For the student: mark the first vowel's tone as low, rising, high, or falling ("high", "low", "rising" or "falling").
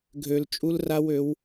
low